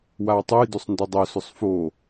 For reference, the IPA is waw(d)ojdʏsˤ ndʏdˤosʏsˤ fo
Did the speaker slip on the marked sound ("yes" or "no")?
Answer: yes